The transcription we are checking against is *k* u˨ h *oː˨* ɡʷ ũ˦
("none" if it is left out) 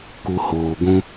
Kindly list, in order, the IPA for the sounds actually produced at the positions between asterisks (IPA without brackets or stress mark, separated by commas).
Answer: k, oː˨